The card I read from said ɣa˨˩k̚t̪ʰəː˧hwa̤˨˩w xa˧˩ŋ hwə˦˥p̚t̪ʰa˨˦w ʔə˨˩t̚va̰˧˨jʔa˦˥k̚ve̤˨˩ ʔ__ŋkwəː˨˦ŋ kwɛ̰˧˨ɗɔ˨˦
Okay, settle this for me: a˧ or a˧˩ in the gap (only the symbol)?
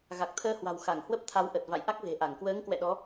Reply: a˧˩